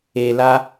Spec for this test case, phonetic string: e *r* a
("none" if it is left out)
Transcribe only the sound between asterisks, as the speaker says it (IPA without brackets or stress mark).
l